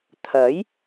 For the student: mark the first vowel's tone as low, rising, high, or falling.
rising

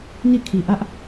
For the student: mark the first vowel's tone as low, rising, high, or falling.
falling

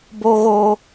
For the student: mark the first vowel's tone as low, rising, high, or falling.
high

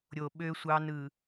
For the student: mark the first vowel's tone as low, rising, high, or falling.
low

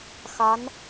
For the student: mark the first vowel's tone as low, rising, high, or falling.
rising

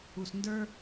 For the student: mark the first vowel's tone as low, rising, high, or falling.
low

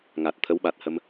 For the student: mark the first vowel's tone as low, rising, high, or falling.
low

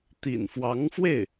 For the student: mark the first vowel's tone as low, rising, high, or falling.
low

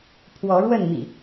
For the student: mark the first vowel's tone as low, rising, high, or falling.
rising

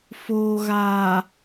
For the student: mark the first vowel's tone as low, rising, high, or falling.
low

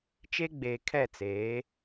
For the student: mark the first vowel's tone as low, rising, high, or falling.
high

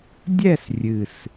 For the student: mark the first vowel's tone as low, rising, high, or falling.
falling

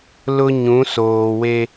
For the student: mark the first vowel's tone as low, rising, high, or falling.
high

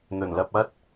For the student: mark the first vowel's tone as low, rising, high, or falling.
low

